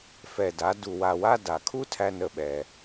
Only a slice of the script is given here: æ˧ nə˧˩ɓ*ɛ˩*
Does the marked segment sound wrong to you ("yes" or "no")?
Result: no